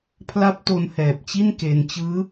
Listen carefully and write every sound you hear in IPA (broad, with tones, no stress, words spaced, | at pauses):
pʰla˦˥p̚to˧nhɛː˨˩p̚t͡ɕi˥˩n ke˧n t͡ɕɯː˦˥